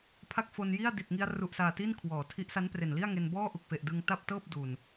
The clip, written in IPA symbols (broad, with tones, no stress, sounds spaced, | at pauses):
pʰ a˥˩ k̚ f o˧ n j i˥˩ a̯ d i˨˩ t̚ ŋ i˧ a̯ r u˨˩ ʔ s aː˨˩ t i˥˩ n kʰ w ɔː˩˦ tʰ i˦˥ ʔ s a˦˥ n p r e˨˩ n l i˥˩ a̯ ŋ e˧ n b ɔː˥˩ ʔ u˨˩ k̚ f e˨˩ ʔ d ɯ˧ ŋ t a˥˩ p̚ t ɤː˥˩ p̚ d u˨˩ n